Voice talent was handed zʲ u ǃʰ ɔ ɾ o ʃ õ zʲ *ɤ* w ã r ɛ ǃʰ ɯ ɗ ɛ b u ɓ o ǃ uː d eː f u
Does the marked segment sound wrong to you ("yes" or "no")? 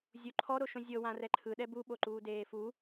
no